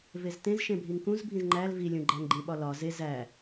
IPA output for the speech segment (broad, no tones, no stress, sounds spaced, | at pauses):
v e z t ẽ z ʃ ẽ bʱ i ŋ k ũ z bʱ ĩ z ŋ͡ǃ æ l v i lʲ ũ ɡ͡ǃ æ ŋ ɡ͡ǃ ĩ ɓ ɒ l ɒ z e z æ